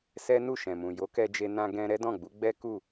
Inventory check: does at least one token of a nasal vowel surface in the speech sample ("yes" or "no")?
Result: yes